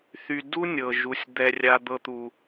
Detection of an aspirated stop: absent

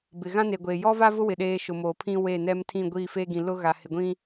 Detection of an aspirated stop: present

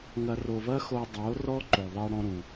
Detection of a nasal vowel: present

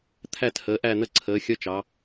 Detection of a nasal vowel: absent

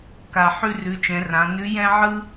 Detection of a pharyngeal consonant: present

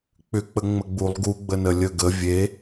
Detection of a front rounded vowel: present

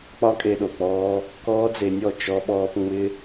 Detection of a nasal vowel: absent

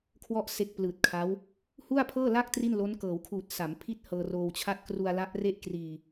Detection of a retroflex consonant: absent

